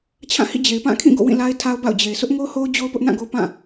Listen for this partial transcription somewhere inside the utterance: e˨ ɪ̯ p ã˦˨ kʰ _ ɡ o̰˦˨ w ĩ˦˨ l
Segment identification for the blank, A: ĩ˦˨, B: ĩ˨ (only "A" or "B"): A